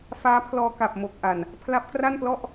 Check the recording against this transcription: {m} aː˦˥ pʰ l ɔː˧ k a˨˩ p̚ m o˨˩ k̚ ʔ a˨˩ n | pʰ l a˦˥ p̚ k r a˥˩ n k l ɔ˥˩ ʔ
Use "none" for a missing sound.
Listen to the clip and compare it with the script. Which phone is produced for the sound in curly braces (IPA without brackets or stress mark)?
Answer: f